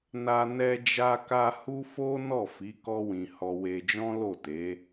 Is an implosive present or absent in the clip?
absent